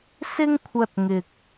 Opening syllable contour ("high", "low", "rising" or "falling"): high